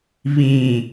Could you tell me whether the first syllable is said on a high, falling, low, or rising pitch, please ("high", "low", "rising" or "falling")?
low